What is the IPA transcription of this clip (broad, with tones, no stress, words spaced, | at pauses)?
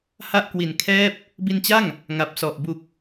ha˥˩ʔkwi˨˩nkʰɛː˥˩p̚ | bi˧nt͡ɕa˥˩ŋ | ŋa˨˩p̚sɔ˨˩ʔ bu˨˩k̚